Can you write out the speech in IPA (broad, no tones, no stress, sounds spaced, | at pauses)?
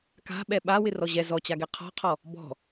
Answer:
k a̤ ɓ ɛ ɓ a w ɪ r ɔ ʑ ɛ z ɔ t͡ɕ a ɡ ɛ qʰ ɔ̤ qʰ ɔ | b ɔ̤